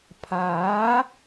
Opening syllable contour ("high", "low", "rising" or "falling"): rising